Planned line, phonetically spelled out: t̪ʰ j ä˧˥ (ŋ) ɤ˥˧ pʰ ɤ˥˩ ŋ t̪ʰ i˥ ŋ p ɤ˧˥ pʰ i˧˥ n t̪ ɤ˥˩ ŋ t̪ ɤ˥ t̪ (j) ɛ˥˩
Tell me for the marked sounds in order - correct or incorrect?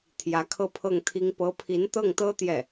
incorrect: kʰ, correct

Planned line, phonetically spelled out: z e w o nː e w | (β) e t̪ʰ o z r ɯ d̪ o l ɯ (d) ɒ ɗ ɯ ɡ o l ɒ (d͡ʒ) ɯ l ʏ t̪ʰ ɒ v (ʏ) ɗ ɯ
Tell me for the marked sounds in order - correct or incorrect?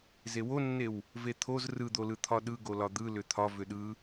incorrect: v, incorrect: t̪ʰ, incorrect: d̪, correct

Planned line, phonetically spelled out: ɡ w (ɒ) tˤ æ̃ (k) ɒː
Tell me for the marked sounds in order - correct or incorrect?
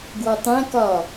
correct, correct

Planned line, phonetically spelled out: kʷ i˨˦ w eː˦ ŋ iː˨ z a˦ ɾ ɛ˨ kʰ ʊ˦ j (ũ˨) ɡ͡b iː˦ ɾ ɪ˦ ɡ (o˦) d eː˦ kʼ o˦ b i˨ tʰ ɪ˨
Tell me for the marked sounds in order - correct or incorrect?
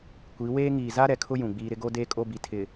correct, correct

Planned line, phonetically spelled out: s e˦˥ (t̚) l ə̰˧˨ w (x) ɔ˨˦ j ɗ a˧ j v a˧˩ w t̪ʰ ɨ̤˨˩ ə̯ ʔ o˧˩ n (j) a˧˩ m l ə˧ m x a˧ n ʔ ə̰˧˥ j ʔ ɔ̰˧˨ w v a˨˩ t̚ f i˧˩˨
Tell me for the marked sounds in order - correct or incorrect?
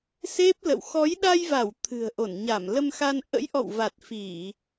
incorrect: p̚, correct, incorrect: ɲ

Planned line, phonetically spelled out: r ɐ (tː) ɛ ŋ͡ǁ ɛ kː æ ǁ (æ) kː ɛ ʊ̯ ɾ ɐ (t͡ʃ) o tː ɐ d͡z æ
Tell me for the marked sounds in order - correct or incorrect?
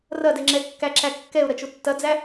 incorrect: d, correct, correct

